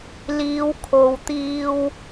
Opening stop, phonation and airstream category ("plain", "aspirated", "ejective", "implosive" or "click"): aspirated